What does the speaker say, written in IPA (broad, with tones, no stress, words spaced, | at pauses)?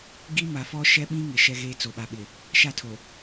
ɡi˦ ma˨fɔ˦ ʃɛ˦ɓĩ˦ŋɪ˨ ʃɛ˦ɣeː˦ t͡so˨ɓa˨ɓɪ˨ | ʃa˦˨tʰo˨